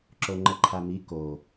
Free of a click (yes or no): no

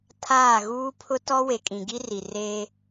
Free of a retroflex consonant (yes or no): yes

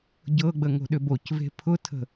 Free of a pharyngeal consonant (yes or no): yes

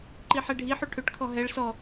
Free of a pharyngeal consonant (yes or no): no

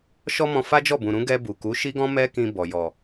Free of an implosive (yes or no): yes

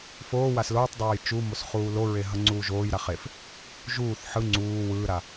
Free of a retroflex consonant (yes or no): yes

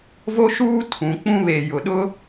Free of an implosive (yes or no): no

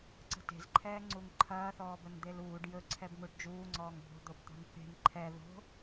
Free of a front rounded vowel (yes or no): yes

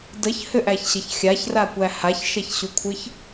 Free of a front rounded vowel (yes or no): no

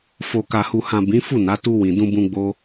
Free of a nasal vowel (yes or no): no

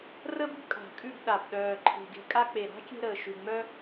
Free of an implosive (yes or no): no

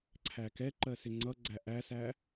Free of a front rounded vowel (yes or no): yes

